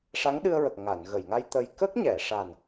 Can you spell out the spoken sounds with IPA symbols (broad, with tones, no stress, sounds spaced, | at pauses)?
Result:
ʂ a˧˥ ŋ ɗ ɨ˧ ə̯ ɹ ə˨˩ k̚ ŋ a˨˩˨ n ɣ ə˨˩˨ j ŋ a˧ j t̪ ə˧ j k ə˦˥ k̚ ɲ ɛ˨˩˨ ʂ a˨˩ n